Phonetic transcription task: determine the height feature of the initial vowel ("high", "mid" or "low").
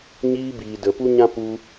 high